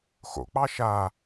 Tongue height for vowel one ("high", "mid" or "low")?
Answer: mid